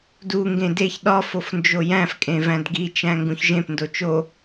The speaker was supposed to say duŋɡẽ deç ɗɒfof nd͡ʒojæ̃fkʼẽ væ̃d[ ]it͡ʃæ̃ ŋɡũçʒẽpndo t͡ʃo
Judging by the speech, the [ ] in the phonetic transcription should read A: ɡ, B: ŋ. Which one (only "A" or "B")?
A